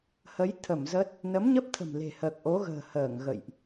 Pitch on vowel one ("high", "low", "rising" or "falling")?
rising